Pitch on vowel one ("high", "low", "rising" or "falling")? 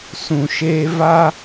low